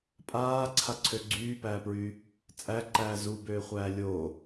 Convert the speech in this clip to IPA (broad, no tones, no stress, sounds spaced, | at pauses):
pʼ aː ǀʰ a ǀʰ ø ɡ͡ǀ yː p æː p ɹ yː | t͡sʼ æ ǃ æː z u b øː χʷ æː lʲ oː